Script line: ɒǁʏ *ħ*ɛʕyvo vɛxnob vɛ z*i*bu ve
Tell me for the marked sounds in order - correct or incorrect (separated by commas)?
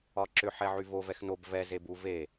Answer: correct, incorrect